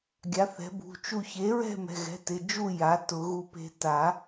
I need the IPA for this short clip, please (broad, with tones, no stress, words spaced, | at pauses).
ɡʲa˩˥θɛ̤˩˥bṳ˩˧˩ t͡ʃu˧˩çe˩˥ɹɛ̤˥˨ mɛ̤˩˧˩ɣɛ̤˩˧˩ tɪ˩˧˩d͡ʒu˥˨ ja˩˥tʊ˨˩˦ ɣu˧˩pe̤˧ ta˨˩˦